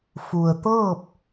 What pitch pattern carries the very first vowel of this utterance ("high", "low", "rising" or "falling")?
low